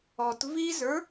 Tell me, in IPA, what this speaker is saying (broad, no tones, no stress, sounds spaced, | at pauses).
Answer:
ɔ t v i z ə˞